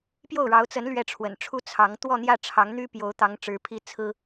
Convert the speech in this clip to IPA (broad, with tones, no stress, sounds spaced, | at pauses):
p j o˥˩ ʊ̯ ɻ ɑ˧˥ ʊ̯ t͡s ə˧˥ n l ɥ ɛ˥˩ ʈ͡ʂʰ w ə̰˨˩ n ʈ͡ʂʰ u˥ t͡sʰ ɑ˧˥ ŋ t̪ w ɔ˥˧ n̪ j ä˥˩ ʈ͡ʂʰ ɑ˧˥ ŋ n̪ y˥ p j o˧˥ ʊ̯ t̪ ɑ˧˥ ŋ ʈ͡ʂ ɻ̩˧˥ pʰ i˥ t͡sʰ ɹ̩˥